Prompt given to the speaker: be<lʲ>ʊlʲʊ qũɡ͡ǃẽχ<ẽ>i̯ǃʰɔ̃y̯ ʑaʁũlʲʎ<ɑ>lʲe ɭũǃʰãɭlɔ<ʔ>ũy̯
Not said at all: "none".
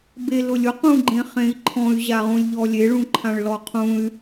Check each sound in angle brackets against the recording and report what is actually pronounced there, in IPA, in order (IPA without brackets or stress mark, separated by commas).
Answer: l, ẽ, ɔ, qʰ